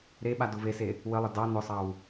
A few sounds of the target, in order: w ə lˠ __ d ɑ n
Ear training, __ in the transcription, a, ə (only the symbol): ə